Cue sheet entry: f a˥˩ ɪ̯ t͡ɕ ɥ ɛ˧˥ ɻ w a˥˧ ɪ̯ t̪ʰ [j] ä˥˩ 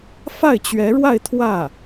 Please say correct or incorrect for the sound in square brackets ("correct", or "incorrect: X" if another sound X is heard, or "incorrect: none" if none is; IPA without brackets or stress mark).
incorrect: w